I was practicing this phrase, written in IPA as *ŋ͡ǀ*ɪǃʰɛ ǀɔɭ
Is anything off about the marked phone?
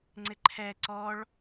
no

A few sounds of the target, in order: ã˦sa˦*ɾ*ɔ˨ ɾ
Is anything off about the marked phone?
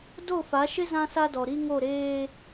yes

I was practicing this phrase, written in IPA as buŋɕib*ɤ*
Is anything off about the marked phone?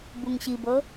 no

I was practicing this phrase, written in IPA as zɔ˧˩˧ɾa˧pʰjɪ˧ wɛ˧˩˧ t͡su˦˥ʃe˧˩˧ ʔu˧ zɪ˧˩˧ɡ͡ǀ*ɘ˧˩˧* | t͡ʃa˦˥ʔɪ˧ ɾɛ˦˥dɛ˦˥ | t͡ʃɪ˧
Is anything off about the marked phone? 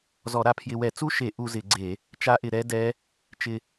yes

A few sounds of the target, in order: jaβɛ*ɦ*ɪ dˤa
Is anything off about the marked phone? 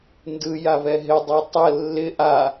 no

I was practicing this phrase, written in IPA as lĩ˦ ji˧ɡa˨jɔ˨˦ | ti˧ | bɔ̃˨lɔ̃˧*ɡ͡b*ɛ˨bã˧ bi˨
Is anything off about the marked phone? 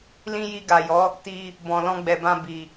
no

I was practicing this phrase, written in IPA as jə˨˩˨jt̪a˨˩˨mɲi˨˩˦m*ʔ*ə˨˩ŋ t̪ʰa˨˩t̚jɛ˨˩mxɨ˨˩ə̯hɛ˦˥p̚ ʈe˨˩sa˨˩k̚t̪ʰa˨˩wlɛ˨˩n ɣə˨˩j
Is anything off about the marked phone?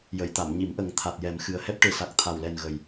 no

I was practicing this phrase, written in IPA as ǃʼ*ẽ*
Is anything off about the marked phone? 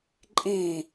no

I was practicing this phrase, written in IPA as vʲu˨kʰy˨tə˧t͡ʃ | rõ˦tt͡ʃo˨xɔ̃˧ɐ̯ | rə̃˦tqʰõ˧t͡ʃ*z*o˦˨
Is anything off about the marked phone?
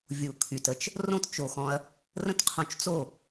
yes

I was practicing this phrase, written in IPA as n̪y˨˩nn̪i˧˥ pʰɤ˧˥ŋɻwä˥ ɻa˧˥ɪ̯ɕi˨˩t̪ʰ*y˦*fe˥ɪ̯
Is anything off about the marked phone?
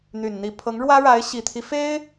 yes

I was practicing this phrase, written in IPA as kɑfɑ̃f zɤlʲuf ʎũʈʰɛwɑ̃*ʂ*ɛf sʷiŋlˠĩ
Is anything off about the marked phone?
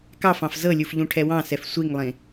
yes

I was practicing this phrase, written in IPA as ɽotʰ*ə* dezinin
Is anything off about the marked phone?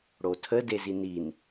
no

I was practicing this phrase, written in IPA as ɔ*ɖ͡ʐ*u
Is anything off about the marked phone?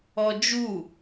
yes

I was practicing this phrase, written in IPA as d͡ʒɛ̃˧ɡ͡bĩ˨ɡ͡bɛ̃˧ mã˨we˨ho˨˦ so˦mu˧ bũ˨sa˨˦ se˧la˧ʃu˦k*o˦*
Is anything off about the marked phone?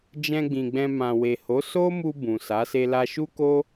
no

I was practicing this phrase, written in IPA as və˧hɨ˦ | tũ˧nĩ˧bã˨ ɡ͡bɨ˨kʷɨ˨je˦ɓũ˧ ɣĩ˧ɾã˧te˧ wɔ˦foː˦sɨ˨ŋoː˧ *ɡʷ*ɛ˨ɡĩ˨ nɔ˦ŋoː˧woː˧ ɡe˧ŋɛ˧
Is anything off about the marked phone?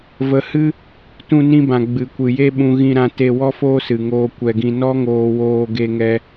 yes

